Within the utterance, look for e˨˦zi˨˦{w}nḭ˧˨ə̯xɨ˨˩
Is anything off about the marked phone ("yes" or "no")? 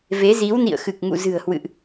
no